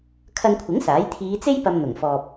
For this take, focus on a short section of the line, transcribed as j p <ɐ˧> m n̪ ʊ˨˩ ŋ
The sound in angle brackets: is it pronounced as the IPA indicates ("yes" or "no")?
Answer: yes